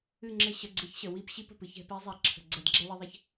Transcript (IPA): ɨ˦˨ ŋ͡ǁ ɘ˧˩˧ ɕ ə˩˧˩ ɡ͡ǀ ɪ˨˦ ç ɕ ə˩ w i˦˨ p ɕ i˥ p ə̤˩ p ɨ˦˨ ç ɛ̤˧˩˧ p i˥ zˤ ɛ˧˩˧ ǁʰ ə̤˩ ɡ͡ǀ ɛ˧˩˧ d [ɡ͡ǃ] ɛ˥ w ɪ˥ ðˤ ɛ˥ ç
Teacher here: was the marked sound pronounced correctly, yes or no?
no